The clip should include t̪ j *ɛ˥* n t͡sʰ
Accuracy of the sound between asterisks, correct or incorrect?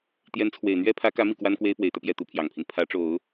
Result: incorrect